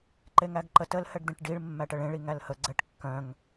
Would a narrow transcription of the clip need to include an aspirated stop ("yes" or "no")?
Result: no